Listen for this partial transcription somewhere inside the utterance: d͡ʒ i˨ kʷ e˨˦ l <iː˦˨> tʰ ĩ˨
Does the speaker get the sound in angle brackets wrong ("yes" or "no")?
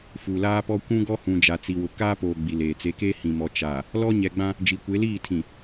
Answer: no